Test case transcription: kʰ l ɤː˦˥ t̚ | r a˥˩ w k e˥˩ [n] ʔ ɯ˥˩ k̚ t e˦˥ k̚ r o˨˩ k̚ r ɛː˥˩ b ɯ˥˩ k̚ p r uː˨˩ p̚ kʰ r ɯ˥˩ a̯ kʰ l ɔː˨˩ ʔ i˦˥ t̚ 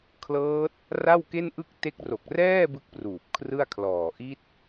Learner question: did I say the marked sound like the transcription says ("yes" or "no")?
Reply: yes